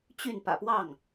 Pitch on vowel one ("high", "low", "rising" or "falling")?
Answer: falling